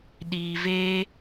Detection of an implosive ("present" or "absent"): present